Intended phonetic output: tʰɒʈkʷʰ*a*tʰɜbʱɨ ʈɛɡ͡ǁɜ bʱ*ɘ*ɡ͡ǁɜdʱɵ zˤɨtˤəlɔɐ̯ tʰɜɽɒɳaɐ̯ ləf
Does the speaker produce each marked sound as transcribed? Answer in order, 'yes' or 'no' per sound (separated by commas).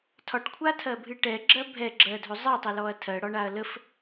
yes, no